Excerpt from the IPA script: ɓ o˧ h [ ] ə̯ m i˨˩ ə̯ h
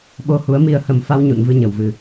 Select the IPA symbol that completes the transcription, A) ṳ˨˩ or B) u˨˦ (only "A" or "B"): B